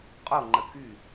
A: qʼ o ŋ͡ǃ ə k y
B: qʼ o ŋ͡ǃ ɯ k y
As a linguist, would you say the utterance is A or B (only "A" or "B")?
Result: A